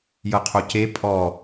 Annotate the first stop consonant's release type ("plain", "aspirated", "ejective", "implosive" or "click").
aspirated